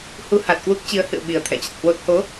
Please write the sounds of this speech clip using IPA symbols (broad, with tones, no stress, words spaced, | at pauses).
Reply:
hu˧ ha˨˩t̚kwu˦˥k̚t͡ɕi˨˦ə̯hɨ̰˧˨ə̯ ɓi˨˩ə̯t̪ʰɛ̰˧˨t͡ɕə˨˩t̚hwo˦˥t̚ ho˨˦